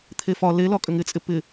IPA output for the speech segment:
t̪ʰ e f ɒ l e l ɒ kʼ ʏ ŋ ɪ t͡sʼ ɪ p ɪ

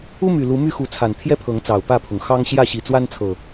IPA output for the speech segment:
u˦ m y˨˩ l u˨˦ m y˥˨ x u˨˦ t͡sʰ a˨˩ n t̪ʰ j ɛ˦ pʰ ɤ˨˦ ŋ t͡s ɑ˨˩ ʊ̯ p ä˥˨ pʰ ʊ˩ ŋ x ɑ˦ ŋ ɕ j ä˥˨ ɕ i˨˩ t͡s w a˦ n t͡sʰ ɤ˨˩

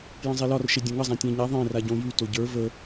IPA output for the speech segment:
j ə̃ zˤ e l ɒ r ʃ e dʲ õ ŋ ə zˤ ã tʲ ẽ ɲ a ðˤ ẽ r a ɟ õ j y t o ɟ ə˞ v ə

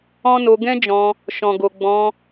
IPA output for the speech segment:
ɔ̃˦ n o˧ ɡ ɛ̃˦ d͡ʒ ɔ̃˧ | ʃ ɔ̃˨ ɡ o˨ ɡ͡b ɔ̃˧

